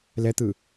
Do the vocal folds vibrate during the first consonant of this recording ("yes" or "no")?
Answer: yes